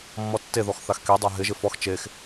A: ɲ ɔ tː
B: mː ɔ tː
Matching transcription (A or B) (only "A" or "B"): B